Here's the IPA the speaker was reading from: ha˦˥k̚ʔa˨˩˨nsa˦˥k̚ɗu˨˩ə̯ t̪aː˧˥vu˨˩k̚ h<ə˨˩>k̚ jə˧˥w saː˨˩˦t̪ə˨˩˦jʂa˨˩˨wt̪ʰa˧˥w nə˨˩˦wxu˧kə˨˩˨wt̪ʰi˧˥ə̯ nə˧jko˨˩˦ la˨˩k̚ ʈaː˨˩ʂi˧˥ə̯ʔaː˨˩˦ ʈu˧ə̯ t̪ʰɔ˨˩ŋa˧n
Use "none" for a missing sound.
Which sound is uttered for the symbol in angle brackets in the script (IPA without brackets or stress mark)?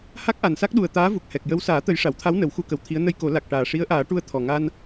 ɛ˨˩